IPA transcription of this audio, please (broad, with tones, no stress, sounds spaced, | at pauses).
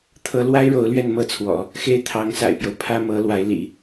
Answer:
t̪ʰ ɤ˧˥ l w a˥ ɪ̯ ɻ o˧˥ ʊ̯ l ɥ ɛ˥˧ n m ɤ˥˩ t͡sʰ w ɔ̰˨˩˦ | x e˥ ɪ̯ t̪ʰ ɑ˧˥ ŋ s a̰˨˩ ɪ̯ p j o˦ ʊ̯ pʰ ä˥ m ɤ˧˥ l w a˧˥ ɪ̯ l ḭ˨˩˦